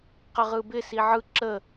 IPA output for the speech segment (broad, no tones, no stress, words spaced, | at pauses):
qəʁɯbɪ siʕɯ ǁə